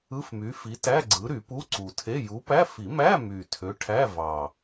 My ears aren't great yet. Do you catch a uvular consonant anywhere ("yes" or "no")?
no